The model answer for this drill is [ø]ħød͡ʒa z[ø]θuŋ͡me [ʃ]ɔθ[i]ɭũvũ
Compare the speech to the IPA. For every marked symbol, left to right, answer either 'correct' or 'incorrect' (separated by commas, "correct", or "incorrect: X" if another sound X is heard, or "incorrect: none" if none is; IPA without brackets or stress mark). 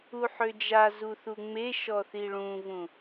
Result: incorrect: u, incorrect: u, correct, correct